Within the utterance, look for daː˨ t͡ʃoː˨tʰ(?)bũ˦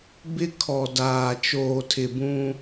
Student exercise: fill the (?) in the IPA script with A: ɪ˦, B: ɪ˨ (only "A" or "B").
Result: B